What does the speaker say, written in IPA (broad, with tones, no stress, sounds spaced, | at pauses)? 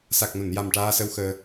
s a˨˩ k̚ n o˨˩˨ n j a˨˩ m ʈ aː˧ s ə˧ w x əː˧